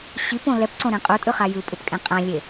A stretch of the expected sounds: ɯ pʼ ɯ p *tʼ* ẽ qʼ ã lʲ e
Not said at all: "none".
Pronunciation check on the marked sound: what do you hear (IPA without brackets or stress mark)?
kʼ